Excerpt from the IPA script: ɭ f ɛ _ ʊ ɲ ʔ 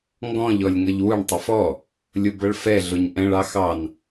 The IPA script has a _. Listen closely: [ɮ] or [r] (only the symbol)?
ɮ